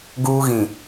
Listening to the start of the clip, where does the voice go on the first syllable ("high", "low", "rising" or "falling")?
high